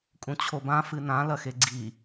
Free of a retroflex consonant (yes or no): yes